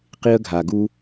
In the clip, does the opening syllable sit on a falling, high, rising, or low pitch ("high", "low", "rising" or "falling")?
high